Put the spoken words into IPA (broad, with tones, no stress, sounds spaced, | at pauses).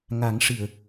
ŋ a˨˩˦ ŋ ʂ ɨ˨˩˨ ə̯